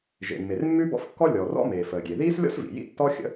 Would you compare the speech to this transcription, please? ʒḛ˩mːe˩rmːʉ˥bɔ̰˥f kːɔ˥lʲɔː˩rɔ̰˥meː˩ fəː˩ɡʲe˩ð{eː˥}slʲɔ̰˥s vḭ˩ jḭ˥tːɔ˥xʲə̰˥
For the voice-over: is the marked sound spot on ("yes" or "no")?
no